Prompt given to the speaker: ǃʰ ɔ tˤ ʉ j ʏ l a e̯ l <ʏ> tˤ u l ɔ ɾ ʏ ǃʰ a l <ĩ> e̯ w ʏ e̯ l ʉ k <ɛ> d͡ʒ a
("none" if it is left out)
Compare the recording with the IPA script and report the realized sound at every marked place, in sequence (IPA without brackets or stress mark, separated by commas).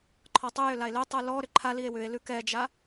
ʏ, i, ɛ